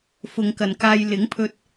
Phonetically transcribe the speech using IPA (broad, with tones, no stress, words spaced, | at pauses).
fʊ˨ŋkɐ˨˩nkaː˧j lɪ˨˥ŋpʰɵ˧t̚